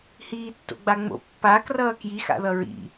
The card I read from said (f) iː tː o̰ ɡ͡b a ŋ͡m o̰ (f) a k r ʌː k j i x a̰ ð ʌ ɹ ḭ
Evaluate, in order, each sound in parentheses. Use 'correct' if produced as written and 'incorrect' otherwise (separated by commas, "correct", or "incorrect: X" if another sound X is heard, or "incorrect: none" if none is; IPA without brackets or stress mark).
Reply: incorrect: h, incorrect: pː